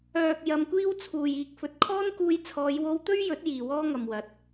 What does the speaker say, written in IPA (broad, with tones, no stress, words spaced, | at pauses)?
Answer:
œː˨k̚ jɐ˧mkʷiː˥wt͡sʰuː˨j iː˨k̚fɵ˨t̚kʰɔː˥nkuː˧j t͡sʰɔː˨˧jwo˧wt̪ɵ˥ɥjɵ˨˥t̚ jiː˨wɔː˥ŋɐ˨mwɐ˨˥t̚